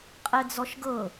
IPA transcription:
qʼ ɛ d͡z ɔ ʃ ɡ ɤ

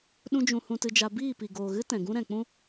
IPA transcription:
ɗ ũ˦ d͡ʒ ũ˧ h ũ˧ t ɨ˧ d͡ʒ a˧ b iː˦˨ p i˨ ɡ oː˨ ɣ ɨ˦ t ɛ̃˨ ɡ ũ˦ ɾ ɛ̃˨ k͡p ũ˦

